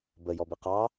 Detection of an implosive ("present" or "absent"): absent